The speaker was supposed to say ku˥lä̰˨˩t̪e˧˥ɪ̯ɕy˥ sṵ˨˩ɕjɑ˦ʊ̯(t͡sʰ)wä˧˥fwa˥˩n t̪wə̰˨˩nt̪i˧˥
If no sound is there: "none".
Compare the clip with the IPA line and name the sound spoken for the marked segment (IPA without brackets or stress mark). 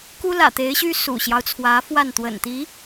t͡sʰ